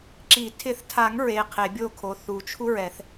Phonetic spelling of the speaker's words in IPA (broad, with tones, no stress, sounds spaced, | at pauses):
ǁ i˨˩˦ tʰ ɪ˨˩˦ θ tʰ a˨˩˦ ŋ ɹ e˩˧˩ qʰ e˨˩˦ bʲ o˥˧ kʰ o˩˧˩ θ u˨˩˦ t͡ʃʰ u˥ ɹ ɛ˨˩˦ θ